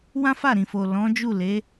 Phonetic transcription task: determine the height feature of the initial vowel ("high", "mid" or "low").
low